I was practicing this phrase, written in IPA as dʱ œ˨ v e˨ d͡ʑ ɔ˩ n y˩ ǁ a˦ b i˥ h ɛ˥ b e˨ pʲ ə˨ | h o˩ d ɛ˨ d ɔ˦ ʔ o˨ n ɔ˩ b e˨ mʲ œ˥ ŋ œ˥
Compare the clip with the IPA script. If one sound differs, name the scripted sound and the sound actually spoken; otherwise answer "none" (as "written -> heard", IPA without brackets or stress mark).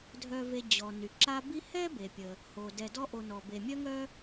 none